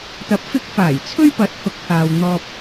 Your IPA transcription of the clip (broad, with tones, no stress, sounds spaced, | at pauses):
t̪ ɐ˨˥ p̚ f ɪ˧ k̚ f aː˨˩ j t͡sʰ ɵ˥ ɥ p ɐ˨˥ t̚ h ʊ˨˥ k̚ h aː˨ w n̪ ɔː˧ p̚